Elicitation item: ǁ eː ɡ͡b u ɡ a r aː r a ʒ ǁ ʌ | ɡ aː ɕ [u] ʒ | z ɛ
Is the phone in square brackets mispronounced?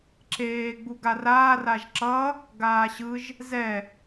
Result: yes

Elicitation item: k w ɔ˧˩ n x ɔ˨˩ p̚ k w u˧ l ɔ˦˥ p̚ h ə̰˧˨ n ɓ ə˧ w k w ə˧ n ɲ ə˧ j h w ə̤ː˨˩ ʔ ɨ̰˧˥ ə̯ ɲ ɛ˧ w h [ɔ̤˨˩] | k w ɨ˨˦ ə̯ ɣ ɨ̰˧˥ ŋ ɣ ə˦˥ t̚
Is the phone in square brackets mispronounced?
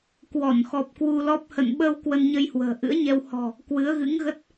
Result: no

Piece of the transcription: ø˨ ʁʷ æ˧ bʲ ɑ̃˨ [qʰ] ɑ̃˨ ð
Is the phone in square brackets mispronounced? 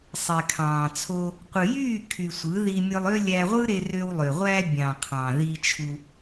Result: no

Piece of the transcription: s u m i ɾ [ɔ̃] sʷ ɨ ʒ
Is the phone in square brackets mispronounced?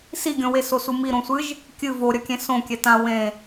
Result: yes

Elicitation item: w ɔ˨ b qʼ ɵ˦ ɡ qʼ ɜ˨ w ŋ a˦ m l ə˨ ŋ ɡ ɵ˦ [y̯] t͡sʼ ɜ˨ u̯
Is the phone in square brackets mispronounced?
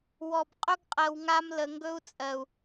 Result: yes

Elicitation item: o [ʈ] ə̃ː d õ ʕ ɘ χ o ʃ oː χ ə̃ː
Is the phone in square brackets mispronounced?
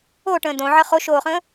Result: no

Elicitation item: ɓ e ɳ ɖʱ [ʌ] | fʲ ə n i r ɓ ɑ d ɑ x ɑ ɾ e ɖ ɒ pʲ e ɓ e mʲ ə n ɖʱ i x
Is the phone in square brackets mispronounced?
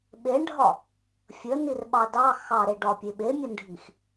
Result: yes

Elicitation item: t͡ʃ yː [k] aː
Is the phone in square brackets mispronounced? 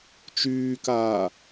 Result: no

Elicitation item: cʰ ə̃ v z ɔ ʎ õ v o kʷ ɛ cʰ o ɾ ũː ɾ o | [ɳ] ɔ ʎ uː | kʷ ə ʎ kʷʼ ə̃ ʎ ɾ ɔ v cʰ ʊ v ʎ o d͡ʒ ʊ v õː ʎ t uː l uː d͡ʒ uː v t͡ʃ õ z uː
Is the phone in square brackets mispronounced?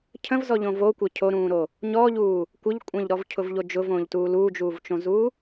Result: yes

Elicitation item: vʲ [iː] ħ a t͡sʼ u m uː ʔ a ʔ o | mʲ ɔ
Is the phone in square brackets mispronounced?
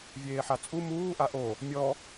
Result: yes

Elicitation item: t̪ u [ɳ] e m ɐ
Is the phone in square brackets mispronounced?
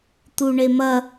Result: no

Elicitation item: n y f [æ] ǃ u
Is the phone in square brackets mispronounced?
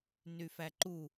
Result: no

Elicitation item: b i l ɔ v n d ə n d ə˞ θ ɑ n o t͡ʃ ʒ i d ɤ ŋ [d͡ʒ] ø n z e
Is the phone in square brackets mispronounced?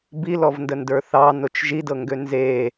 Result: yes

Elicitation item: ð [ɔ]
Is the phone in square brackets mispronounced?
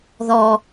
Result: no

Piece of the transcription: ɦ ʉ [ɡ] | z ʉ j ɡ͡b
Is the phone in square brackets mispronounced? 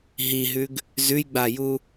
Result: no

